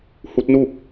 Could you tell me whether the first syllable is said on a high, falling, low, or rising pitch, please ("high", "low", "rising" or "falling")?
rising